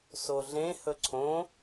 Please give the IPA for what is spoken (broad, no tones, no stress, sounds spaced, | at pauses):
s o ɮ ẽ h ɵ ǀʰ õ